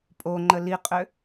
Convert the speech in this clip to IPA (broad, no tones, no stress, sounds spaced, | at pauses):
pʼ o ŋ͡ǃ ə l i qʼ ø